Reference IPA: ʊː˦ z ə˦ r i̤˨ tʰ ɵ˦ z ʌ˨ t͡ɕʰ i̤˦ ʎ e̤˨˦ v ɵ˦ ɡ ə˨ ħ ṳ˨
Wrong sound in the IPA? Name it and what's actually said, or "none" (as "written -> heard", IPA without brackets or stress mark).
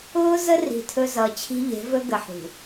none